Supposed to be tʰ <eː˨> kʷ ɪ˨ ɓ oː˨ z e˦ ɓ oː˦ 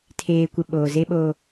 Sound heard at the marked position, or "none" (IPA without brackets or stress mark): eː˨